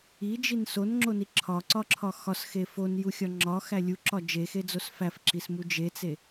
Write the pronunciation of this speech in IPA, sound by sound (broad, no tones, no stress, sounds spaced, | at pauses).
i d͡ʒ i n s o n ŋ͡ǁ o n i ǁʰ ɒ ǀ ɒ ǁʰ ɒ x ɒ s x e f o n j u xʲ ɒ ŋ͡ǁ ɒ x æ lʲ u ǁ ɒ d͡ʒ e x e d͡z o s f æ f ǁ i s m u d͡ʒ e t͡s e